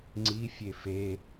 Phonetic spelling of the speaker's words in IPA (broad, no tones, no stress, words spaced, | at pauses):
ŋ͡ǀi fʲefe